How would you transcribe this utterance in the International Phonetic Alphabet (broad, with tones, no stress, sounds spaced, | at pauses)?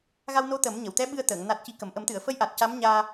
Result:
ɣ a˧ w n o˧˥ t̪ ə˨˩˦ m ɲ ə˨˩˨ w t̪ ɛ˧˥ ɓ ɨ˧ ə̯ t̪ əː˨˩˨ ŋ n a˨˩ t̚ c i˨˩ k ə˨˩˨ m ʔ ə˨˩˦ m t̪ ɨ˨˩˨ ə̯ f ə˧˥ j ʔ a˨˩ t̚ c a˧˥ m ɲ aː˧